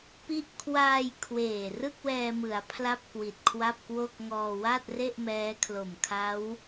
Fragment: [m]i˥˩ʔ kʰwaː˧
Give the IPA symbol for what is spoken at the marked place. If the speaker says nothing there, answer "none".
p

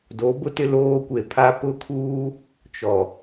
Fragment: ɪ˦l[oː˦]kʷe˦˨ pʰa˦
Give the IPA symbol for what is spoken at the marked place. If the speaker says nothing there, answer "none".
oː˦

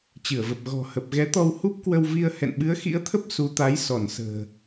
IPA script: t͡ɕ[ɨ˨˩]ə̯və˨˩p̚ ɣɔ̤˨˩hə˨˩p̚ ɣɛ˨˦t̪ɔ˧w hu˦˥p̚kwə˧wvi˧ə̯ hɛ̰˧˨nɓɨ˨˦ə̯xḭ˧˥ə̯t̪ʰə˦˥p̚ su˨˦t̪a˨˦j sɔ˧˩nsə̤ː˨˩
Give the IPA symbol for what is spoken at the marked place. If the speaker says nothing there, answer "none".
ɨ˧˩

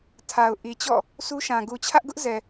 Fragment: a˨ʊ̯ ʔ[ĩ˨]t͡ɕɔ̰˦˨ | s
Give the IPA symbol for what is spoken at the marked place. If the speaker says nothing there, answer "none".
i˨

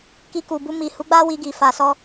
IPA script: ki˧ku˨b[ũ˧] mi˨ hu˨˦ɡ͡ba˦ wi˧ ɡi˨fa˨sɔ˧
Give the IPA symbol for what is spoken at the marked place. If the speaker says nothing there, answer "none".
u˧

